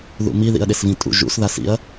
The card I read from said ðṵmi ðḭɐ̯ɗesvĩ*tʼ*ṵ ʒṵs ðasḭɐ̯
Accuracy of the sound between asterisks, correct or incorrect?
correct